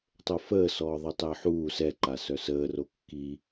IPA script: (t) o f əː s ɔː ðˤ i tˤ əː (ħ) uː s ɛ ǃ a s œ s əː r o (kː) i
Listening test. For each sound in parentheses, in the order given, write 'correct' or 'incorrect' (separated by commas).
incorrect, correct, correct